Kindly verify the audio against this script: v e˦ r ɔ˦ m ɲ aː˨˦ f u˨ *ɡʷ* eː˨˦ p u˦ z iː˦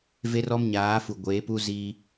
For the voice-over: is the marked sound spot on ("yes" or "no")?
yes